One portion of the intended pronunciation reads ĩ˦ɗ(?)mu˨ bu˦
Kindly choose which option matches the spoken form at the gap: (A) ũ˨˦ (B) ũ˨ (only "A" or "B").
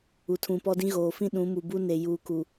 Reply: A